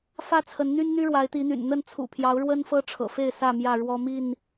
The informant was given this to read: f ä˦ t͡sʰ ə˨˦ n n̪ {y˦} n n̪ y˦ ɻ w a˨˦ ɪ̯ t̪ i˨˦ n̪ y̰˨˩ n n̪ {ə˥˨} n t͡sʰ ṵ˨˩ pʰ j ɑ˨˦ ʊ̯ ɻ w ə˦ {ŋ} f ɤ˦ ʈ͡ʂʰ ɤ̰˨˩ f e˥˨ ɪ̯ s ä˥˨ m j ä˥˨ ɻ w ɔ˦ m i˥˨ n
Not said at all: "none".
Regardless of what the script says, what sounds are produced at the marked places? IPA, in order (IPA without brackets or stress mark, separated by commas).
y˦, ə˥˨, n